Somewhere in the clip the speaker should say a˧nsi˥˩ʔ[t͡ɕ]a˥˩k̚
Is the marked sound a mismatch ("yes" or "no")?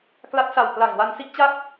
no